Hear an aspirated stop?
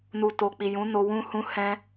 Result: no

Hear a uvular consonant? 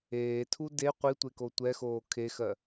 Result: yes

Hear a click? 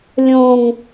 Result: no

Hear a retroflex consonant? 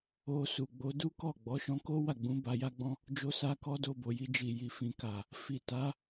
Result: no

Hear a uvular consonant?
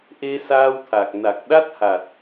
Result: no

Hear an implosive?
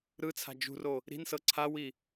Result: no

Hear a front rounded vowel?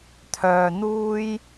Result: yes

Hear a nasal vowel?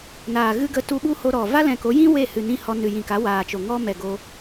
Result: yes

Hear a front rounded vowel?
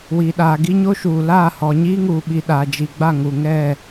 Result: no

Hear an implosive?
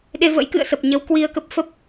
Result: yes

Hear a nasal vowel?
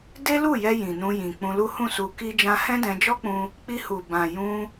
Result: yes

